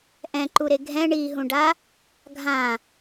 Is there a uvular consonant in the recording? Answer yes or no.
no